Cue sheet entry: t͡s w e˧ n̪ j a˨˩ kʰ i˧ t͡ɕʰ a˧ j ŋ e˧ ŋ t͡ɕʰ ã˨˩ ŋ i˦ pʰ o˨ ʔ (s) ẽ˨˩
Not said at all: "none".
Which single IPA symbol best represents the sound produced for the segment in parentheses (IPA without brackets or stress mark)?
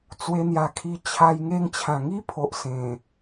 s